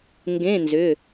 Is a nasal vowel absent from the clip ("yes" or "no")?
no